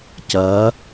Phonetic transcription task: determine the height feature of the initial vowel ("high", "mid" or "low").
low